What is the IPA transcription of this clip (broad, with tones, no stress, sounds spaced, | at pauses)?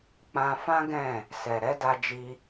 k͡p ã˧ f ã˦ ɡ ɛ̃˦˨ | s ɛ˨ ɾ ɛ˨˦ d a˧ d͡ʒ i˧